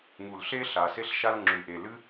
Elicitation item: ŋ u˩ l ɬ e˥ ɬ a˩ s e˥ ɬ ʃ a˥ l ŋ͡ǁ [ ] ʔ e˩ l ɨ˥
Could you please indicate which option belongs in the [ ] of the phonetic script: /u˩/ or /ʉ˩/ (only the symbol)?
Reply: ʉ˩